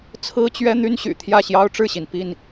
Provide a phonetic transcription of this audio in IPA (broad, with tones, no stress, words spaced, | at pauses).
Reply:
t͡sʰɹ̩˦t͡ɕɥɛ˦ n̪y˦nɕy̰˨˩ t̪ʰjä˥˨ɕjɑ˦ʊ̯ʈ͡ʂɻ̩˥˨ɕi˩n pi˥˨n